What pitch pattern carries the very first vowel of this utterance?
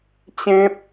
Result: high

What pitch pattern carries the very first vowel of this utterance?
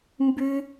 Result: high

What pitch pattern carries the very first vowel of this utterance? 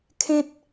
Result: high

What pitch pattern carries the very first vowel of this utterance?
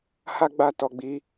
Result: high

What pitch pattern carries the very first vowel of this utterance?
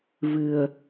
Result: low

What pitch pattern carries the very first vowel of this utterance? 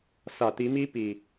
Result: low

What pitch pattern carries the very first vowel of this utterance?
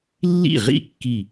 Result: falling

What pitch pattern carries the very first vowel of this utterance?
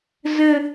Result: low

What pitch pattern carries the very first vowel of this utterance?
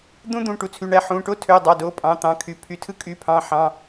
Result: high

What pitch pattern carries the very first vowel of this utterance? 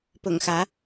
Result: low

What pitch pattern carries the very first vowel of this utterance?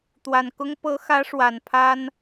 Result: low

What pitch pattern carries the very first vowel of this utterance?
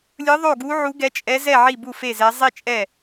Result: rising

